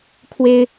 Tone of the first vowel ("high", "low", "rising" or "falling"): high